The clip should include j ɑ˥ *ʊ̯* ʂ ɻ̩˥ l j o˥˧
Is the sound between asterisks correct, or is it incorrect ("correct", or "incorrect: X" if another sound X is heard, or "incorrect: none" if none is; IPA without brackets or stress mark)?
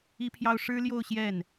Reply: correct